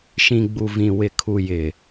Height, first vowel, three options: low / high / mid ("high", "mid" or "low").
high